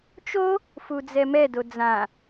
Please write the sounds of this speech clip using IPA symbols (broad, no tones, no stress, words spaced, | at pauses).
t͡ʃo | fud͡zɛmɛdo d͡zã